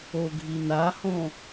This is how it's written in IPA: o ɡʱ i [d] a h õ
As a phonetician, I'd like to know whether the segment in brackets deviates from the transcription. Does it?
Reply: yes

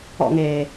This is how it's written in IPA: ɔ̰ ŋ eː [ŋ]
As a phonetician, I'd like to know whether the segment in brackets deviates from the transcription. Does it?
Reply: yes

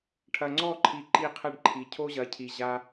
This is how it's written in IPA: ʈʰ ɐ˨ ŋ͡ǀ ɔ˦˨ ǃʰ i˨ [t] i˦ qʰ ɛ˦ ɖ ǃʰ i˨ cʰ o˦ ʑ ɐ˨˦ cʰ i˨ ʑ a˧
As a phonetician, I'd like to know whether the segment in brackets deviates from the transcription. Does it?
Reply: yes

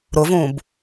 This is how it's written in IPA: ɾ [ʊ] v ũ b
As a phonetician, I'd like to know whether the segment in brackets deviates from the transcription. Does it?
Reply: no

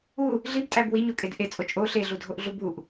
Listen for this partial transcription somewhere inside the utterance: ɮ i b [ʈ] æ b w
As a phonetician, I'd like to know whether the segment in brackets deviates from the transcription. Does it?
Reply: yes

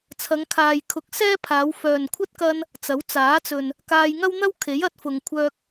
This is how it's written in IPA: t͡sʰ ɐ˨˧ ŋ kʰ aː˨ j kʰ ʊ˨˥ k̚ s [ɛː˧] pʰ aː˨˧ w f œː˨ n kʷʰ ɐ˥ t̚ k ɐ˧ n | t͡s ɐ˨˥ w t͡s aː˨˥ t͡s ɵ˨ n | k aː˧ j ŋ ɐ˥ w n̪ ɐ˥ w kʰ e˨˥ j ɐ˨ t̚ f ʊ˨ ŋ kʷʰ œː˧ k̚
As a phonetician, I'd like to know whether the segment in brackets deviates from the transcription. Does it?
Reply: yes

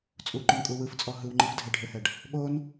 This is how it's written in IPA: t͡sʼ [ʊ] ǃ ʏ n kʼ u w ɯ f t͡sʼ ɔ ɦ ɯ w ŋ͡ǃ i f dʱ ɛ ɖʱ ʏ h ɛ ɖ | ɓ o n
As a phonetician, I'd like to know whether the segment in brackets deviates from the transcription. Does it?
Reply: yes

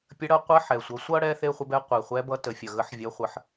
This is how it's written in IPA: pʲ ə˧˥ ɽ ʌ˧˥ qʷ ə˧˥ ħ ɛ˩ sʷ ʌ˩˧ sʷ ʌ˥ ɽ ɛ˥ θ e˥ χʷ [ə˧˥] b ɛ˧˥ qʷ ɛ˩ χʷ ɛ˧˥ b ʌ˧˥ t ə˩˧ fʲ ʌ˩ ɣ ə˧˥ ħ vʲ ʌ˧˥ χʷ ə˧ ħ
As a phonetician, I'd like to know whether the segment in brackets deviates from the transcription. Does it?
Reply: no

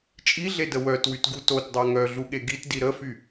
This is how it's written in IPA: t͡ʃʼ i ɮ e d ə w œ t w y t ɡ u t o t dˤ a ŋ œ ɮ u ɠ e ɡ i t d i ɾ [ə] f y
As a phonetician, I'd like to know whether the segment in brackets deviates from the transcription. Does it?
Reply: no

